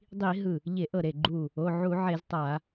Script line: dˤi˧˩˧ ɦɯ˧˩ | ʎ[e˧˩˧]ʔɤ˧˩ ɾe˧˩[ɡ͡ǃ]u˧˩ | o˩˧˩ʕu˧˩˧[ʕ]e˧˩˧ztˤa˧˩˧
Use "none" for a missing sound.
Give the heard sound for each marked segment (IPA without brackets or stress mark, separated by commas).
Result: e˧˩˧, ɡ͡ǃ, ʕ